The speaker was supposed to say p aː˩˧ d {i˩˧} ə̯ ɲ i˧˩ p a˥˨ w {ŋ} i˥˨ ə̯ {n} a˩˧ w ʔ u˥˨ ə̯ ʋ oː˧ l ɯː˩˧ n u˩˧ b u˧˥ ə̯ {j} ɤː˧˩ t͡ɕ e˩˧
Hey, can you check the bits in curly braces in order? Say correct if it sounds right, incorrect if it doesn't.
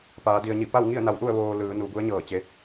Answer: incorrect, correct, correct, incorrect

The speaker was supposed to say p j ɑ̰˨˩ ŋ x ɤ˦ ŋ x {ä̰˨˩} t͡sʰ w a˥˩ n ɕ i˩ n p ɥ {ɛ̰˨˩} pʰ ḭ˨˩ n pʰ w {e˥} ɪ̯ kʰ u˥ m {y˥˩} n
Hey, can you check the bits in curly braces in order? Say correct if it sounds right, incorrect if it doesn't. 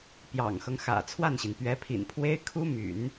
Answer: correct, incorrect, correct, incorrect

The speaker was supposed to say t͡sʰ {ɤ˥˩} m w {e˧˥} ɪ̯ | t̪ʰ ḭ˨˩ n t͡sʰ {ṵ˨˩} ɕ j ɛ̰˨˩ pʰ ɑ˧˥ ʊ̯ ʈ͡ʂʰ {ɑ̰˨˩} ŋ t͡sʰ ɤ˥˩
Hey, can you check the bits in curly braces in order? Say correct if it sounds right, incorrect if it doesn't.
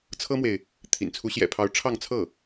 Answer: incorrect, incorrect, incorrect, incorrect

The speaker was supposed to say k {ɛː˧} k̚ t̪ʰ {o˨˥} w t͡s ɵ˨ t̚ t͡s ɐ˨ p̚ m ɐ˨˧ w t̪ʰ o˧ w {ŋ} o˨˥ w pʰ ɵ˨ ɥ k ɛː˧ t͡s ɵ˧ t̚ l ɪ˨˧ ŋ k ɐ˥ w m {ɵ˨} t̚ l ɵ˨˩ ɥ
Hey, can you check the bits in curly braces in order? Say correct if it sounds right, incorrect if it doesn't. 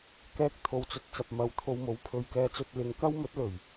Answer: correct, incorrect, incorrect, incorrect

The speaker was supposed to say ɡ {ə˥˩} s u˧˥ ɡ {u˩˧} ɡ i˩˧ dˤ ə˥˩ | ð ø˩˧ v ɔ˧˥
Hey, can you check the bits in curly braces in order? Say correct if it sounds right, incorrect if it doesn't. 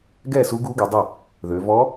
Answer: incorrect, incorrect

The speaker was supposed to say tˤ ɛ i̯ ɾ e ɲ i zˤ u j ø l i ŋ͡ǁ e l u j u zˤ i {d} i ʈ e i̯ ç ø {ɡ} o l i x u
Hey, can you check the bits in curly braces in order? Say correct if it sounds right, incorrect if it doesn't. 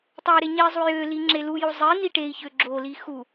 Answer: incorrect, incorrect

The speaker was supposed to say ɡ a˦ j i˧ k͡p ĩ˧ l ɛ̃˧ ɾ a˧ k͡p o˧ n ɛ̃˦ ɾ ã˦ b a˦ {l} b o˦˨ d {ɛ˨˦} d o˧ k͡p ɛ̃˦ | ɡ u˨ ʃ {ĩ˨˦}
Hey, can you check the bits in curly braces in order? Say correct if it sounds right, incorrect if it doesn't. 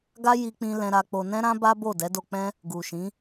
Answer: incorrect, correct, correct

